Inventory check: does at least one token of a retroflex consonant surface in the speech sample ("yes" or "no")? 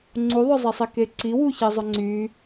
no